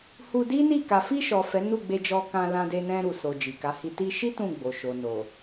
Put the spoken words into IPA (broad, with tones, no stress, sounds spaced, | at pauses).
h u˧ d i˦ n i˦˨ k a˨ f i˧ ʃ ɔ˨ f ɛ˨˦ n u˦˨ ɡ͡b e˧ d͡ʒ ɔ˧ k ã˧ l ã˧ d e˧ n ɛ̃˧ ɾ u˨ s o˨ d͡ʒ i˨ k a˨˦ h i˧ t i˧ ʃ i˦ t ũ˦˨ ɡ͡b o˨ ʃ o˨ n o˨